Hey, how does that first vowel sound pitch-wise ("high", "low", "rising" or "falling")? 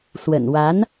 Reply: low